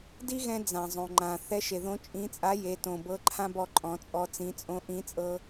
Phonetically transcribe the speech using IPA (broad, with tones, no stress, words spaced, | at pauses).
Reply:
di˥ɣɛ̃˧ d͡zã˩zˤõ˩ŋ͡ǃã˩ θɛ˧˥ʃe˩ðõ˧˥ t͡ʃʼĩ˧˥t͡sʼa˧˥ je˩˧tõ˩bɤ˧˥ ǃʰã˥bɔ˧ ǃʼɔ̃˩˧t͡sʼɔ˧ t͡sĩ˩˧t͡sʼõ˧˥ʔĩ˧˥t͡sʼɤ˧